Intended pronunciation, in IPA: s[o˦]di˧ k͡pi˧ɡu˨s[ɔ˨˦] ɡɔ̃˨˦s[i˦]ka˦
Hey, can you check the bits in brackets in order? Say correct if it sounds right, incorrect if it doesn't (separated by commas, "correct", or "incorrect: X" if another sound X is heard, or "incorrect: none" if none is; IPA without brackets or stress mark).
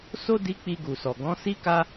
correct, incorrect: ɔ˨, correct